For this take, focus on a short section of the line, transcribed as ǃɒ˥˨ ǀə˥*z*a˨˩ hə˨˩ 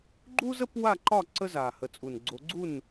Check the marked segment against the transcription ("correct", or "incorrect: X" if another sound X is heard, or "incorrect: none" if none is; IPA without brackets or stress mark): correct